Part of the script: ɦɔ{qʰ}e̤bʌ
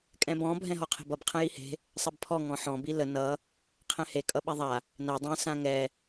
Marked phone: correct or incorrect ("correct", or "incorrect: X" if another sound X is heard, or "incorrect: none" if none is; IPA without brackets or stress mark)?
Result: correct